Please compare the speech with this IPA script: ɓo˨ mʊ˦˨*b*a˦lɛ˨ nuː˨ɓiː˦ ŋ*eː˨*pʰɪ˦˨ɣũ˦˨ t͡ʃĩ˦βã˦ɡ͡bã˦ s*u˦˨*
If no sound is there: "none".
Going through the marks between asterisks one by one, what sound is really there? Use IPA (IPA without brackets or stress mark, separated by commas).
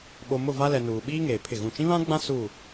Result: v, eː˨, u˦˨